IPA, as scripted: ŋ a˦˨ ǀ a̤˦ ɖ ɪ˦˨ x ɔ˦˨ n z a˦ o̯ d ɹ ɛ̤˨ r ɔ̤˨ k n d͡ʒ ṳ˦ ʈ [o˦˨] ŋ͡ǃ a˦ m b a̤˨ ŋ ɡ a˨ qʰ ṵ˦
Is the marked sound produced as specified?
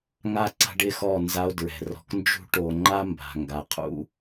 no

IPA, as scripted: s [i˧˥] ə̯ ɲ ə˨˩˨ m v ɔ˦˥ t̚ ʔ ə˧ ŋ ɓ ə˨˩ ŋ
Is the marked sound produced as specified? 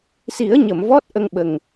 no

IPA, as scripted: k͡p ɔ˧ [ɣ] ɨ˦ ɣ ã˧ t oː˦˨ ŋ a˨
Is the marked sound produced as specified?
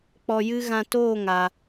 no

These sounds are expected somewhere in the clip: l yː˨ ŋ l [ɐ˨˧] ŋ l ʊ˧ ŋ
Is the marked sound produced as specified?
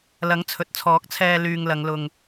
yes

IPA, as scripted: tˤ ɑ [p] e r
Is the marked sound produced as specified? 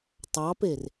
yes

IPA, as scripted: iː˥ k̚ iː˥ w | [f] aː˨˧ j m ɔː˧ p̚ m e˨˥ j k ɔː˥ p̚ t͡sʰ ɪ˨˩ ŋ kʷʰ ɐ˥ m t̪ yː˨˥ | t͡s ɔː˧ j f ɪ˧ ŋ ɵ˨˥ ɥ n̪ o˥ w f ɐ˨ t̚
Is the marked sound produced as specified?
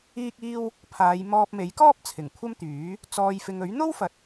no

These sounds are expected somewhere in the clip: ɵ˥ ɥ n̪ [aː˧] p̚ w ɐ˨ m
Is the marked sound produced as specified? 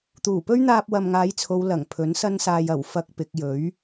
yes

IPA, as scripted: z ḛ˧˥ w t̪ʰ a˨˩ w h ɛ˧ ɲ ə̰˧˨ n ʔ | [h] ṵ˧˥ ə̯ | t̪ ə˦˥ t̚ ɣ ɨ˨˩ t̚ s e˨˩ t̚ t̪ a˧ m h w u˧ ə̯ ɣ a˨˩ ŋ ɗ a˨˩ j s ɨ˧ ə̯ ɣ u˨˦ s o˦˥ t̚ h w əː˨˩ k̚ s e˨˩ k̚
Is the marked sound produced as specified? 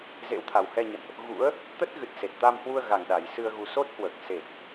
no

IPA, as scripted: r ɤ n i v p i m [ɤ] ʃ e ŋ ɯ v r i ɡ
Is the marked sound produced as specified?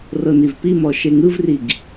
no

